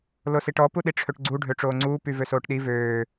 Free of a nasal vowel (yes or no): yes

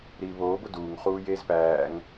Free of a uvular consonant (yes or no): no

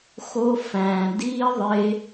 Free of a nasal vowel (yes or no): no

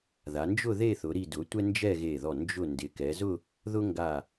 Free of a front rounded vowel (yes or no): yes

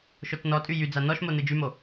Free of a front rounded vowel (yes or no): no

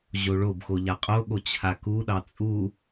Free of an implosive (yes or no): no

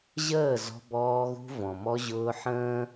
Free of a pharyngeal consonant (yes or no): no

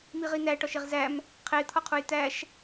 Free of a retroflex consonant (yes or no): no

